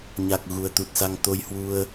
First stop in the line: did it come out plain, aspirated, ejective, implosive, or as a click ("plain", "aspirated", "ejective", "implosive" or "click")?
plain